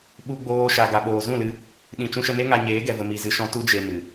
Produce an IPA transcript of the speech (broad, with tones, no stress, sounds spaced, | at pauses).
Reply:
ɓ u˧ ɡ͡b oː˧ ʃ a˨ ɡ a˨ ɓ oː˨ z ũ˦˨ l ɨ˧ | ɗ ĩ˨ t͡ʃ ũ˧ ʃ ə˧ n e˦ ŋ a˧ ɲ eː˨˦ ɡ ɛ˨ v ə˨ m i˧ z ɨ˧ ʃ ɔ̃˦ t u˦ d͡ʒ e˧ m ɨ˨